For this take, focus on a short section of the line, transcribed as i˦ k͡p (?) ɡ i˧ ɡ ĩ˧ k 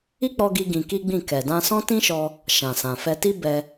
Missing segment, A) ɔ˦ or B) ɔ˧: B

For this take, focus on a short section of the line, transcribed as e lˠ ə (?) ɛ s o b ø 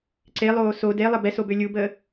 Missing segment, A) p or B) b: B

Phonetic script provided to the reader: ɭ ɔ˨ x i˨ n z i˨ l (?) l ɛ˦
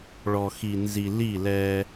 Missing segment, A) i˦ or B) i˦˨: B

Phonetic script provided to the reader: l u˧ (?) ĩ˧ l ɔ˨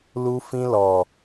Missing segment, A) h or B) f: B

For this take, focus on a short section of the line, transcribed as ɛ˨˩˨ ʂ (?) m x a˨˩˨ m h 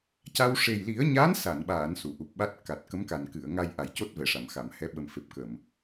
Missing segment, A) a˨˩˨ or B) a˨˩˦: A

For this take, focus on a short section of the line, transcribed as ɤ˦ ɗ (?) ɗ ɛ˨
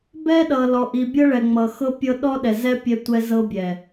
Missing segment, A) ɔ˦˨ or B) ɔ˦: B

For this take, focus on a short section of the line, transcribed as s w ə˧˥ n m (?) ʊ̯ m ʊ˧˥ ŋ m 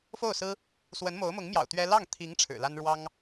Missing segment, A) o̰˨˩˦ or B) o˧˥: B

